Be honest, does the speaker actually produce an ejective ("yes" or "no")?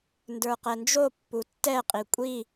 yes